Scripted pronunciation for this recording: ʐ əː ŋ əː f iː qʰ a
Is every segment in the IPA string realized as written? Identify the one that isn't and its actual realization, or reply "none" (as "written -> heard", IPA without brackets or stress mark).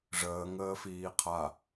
none